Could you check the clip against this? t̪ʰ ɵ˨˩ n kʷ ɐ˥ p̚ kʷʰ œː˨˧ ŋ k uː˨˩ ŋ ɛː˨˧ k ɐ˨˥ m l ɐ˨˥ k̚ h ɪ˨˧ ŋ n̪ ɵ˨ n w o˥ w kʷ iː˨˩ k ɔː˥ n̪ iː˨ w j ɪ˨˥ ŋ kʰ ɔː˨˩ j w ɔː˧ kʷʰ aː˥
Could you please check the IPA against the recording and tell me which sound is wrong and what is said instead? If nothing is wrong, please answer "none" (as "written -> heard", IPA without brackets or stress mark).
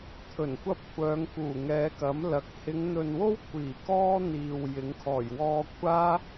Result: none